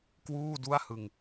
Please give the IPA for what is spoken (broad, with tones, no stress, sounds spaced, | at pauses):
k w uː˥˩ d u˥˩ a̯ h ɯ˧ ŋ